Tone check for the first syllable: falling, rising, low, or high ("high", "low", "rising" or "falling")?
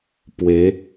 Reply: rising